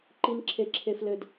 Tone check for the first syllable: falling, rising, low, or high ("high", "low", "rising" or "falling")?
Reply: low